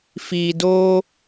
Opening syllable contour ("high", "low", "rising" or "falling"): low